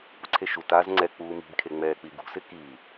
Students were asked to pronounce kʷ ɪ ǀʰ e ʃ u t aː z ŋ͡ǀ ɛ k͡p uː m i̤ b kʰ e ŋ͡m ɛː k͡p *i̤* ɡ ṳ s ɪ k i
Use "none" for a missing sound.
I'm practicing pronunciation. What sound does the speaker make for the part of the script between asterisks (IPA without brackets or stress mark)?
i